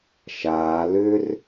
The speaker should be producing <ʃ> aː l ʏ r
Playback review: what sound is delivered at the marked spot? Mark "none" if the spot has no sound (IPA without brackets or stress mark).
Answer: ʃ